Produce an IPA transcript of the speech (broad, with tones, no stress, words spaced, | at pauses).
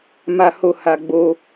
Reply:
ma˧ho˧ ha˧ɡ͡bo˧